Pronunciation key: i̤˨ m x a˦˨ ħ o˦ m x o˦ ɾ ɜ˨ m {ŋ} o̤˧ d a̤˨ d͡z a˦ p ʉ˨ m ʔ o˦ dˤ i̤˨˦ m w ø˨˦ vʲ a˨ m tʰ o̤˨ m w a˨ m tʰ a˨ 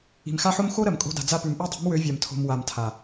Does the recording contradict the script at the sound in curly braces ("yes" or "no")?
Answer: yes